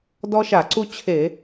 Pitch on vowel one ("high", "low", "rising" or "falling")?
high